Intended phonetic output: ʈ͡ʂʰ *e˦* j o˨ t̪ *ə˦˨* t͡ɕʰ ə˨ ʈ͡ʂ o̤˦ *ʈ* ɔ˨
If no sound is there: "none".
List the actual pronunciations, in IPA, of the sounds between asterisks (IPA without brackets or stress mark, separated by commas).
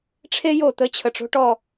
e˦, ə˦˨, ʈ